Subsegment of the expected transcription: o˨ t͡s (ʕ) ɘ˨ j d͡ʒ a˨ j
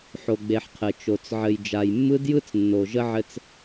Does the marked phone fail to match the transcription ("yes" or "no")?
no